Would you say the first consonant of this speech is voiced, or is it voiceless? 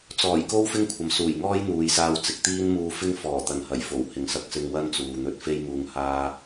voiceless